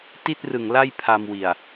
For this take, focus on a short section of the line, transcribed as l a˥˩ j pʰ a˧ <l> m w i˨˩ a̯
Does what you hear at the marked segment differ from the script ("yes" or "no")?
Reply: yes